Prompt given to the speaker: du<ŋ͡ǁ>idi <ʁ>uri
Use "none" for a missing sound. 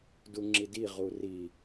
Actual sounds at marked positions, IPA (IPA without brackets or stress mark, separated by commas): ŋ͡ǁ, ʁ